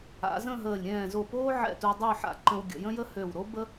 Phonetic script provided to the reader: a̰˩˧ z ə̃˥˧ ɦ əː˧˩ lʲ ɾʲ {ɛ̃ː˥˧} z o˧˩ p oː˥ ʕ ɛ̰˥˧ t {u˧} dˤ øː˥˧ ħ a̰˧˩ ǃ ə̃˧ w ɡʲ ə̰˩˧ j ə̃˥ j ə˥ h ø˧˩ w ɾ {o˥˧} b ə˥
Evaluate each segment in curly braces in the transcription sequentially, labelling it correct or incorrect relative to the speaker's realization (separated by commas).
incorrect, correct, incorrect